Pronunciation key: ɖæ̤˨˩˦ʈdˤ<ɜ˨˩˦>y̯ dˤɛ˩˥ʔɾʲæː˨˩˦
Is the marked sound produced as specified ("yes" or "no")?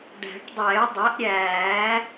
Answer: no